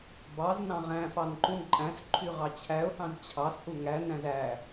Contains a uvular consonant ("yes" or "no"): yes